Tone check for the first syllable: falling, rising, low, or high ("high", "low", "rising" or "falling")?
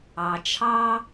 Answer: low